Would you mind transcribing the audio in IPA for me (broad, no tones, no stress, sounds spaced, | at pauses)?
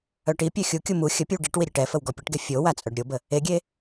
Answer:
œ ʈ i pʲ œ xʲ u kʲ u m u xʲ ə pʲ ə w ɖ i ʈ w i ɾʲ e ʈ ɛ f ə w ɡ ɔ pʲ ə ʈ ɡ e fʲ o w a t͡sʼ œ ɖ ɾʲ o b ə | e ɡʲ e